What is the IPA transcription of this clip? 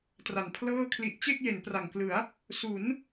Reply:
t r a˨˩ n pʰ l ɤː˥˩ kʰ l i˦˥ ʔ t͡ɕ e˥˩ k̚ j e˩˦ n p r a˨˩ ŋ k l ɯ˩˦ a̯ | s u˩˦ n

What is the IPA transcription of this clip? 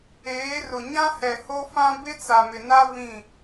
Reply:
eː˨˦ r ʊ˨ ɲ ã˦ h ɛ˨ h o˦ f ã˦ b ɪ˦ t͡s a˨ m ɪ˨ n a˦ v ĩ˦˨

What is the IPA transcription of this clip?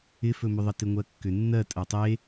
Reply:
ɪ f ɵ m ʏ ðˤ ə t ɪ ŋʷ ɜ kː ʏ nː ɜ tʼ ɜ tˤ e

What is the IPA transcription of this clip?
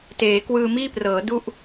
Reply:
t eː˩˦ k w ɯː˧ m iː˥˩ p r ɤː˩˦ d u˥˩ ʔ

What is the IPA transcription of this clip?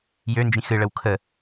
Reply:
j ø n d͡ʒ ĩ x ɨ ɭ ə w kʰ ə

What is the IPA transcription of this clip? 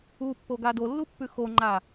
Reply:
u pː o ɡ a d o lː u pː ʉ x o ŋ͡ǃ a

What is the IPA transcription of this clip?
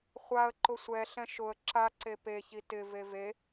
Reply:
χʷ a ə̯ ǃ ʊ sʷ ɛ ɬ ɛ̃ ʃ ʊ ə̯ ǁ a ǀ e p e ç i t ɪ v e v e

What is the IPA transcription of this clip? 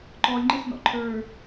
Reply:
ǃ ɔ lʲ ŋ͡ǃ ɘ s n ɔ̰ ǃʰ ə˞

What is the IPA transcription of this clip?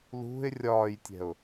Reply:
l ṳ ɪ̯ rʲ ɒː j tʲ ɛ̤ ʊ̯

